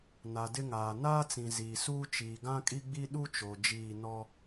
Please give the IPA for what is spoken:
n a˨ d ɪ˦ ŋ aː˨ n aː˦ t͡s ĩ˨ z iː˨ s uː˦ t͡ʃ iː˨ ɡ ã˦ kʼ i˦ ɡ͡b i˦ ɗ u˦ t͡ʃ o˨ d͡ʒ iː˦˨ n ɔ˦

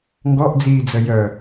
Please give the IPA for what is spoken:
ŋ ɡ ɔ ʔ d͡z iː d͡z ə j œ

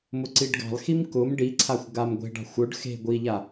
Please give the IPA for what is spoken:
m ʊ ǀ i ɖ ɡ ɑ̤ lˠ x i m k ʊ m ɖ i ǀʰ a xʷ ɡ a m ɡʷ e̤ ɖ ɑ̤ xʷ ʊ ɖ x e̤ ɡʷ i ʎ a

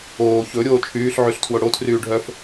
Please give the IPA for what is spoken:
oː ç ɵ ɾʲ oː t͡ʃʰ yː ɬ ʕ y ɬ tʰ w o ɽ o tʰ r yː ɖʱ œ f

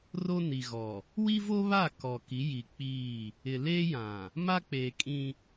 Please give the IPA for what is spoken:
r o˦ n i˨ ɣ ɔ˨ | w i˦ v o˦ β a˦˨ k ɔ˨ k i˨˦ j i˨ k͡p iː˦˨ | ɪ˨ l eː˦ j ã˨ | m a˦ k͡p eː˨ kʼ ĩ˦

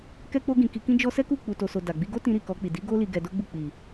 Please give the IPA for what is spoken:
k ɛ˦ k͡p o˦ ɡ ĩ˧ k i˧ k ĩ˦ d͡ʒ ɔ˦ s ɛ˦ k u˦˨ k͡p u˨ t o˨ s o˨ d a˨ ɡ͡b i˧ ɡ o˦ t ĩ˧ ɾ i˨ k ɔ˧ k͡p i˨ d i˨˦ ɡ o˦ l i˧ ɡ ɛ˧ d o˦ ɡ͡b u˦˨ k͡p i˨

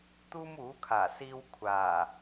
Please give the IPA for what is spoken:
t̪ uː˥ m uː˨˥ kʰ aː˨˩ s iː˧ w kʷʰ aː˨˩

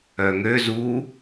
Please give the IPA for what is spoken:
œ ŋ ø z uː

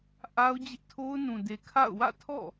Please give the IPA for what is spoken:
ʔ a˦ ʊ̯ d͡ʑ ɪ˦ ʔ tʰ o˦ ʊ̯ n ũ˨ d e˨ kʰ a̰˦˨ ʊ̯ w ä̰˦˨ tʰ ɔ̰˦˨

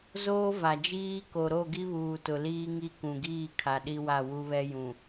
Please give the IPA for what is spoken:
z oː˦ v a˨ d͡ʒ iː˦ k o˨ ɾ o˦˨ ɡ i˦ β uː˨ t ʊ˨ l iː˦ ŋ i˦ k ũ˨ ɡ iː˦˨ kʰ a˨ ɗ i˦ w a˦˨ w u˦ β ɛ˦ j ũ˨

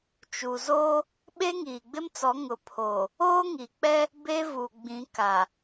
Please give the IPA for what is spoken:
t͡ʃ u˨ z oː˦ | ɓ e˦ ŋ iː˨ ɡ͡b ɪ˦ m t͡s ɔ˨˦ ŋ ʊ˨ pʰ oː˨ | oː˦ ŋ i˨ k͡p ɛ˦ | b e˦ v u˨ ɡ͡b ĩ˨˦ k a˨

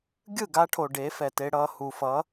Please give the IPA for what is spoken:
ɡʲ ɯ˦˨ ɡ a˧ ʈʰ o˨ ɖ e˨˦ f ɛ˨ t e˧ ɽ ʌː˧ h u˨ f ʌ˨˦

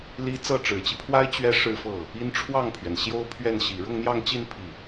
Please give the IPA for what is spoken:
l i˥ t͡s ɤ˥˩ ʈ͡ʂ ɻ̩˨˩ t͡ɕ i˦ pʰ w a˥ ɪ̯ t͡ɕ ɥ ɛ˥ ʂ ɻ̩˥˧ f ɤ˥˩ | i˥ n ʈ͡ʂʰ w ɑ˥˩ ŋ pʰ ɥ ɛ˩ n ɕ j o˥ ʊ̯ pʰ ɥ ɛ˥˩ n ɕ i˨˩ ɻ ʊ˥˧ ŋ n̪ j ɑ˥˧ ŋ t͡ɕ i˥˧ n pʰ i˥˩

